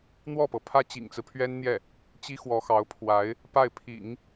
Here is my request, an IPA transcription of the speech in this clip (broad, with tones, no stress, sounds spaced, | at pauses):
n̪ w ɔ˥˩ p ɤ˩ pʰ ä˥ t͡ɕ ḭ˨˩ ŋ t͡s ɹ̩˦ pʰ ɥ ɛ˥ n n̪ j ɛ˥˩ | t͡ɕ i˥ x w ɔ˧˥ x ɑ˧˥ ʊ̯ pʰ w a˧˥ ɪ̯ | p a˥˩ ɪ̯ pʰ ḭ˨˩˦ ŋ